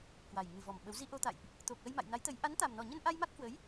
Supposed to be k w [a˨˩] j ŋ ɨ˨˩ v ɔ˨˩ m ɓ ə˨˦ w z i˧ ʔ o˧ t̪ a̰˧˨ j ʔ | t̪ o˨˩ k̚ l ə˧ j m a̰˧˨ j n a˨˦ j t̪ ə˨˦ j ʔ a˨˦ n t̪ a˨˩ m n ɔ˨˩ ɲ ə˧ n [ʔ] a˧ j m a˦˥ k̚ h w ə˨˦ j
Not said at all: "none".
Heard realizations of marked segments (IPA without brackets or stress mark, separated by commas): a˨˩, ʔ